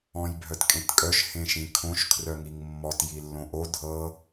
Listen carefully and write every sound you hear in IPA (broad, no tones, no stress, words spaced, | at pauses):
ɔ̃jbʱœtkʼẽtkʼœʃ hẽʃĩkʰõʃ kʰrœŋiŋmːɔt jilːõʔo dʱɤ